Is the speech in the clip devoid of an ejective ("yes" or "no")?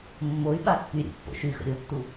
yes